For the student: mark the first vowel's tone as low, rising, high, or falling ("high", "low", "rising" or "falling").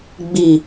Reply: low